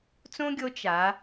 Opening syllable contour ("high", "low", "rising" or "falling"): high